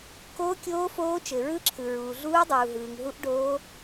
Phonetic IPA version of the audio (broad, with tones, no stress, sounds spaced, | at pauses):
k oː˦˥ kʲ oː˦˥ f oː˦˥ t͡ʃ ɘ˨ ɹ ɯ˦˥ ǁʰ ɯ˨ ɹ uː˨ ɮ uː˦˥ dˤ uː˨ ɦ ɯː˨ ŋ ɦ u˦˥ ʔ ɖ oː˦˥